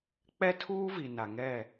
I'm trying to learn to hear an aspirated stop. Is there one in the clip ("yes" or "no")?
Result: yes